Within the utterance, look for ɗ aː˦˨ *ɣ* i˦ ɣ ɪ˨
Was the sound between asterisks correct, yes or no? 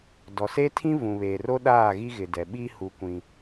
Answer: yes